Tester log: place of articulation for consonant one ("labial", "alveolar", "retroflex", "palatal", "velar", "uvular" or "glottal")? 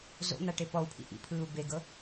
alveolar